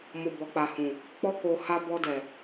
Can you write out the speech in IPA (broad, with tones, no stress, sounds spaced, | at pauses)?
m o˨ b ɔ˨ k͡p a˨ h ũ˨ | k͡p ɔ˧ k o˨ h a˧ b ɔ˧ d ɛ˨